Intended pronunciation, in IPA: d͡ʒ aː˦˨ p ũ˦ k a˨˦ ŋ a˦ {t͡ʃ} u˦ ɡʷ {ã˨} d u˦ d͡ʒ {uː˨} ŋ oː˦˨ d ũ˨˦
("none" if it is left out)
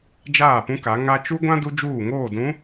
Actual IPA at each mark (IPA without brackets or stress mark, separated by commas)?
t͡ʃ, ã˦, uː˦˨